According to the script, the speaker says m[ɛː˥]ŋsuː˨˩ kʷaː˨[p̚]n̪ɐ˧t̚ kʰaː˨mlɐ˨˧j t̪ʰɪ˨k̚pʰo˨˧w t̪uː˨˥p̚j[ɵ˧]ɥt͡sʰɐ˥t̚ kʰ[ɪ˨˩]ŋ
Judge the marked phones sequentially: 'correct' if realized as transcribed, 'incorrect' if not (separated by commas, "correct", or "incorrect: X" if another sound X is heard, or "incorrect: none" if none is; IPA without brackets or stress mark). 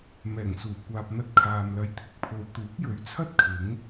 incorrect: ɛː˨˩, correct, incorrect: ɵ˨˥, incorrect: ɪ˨˥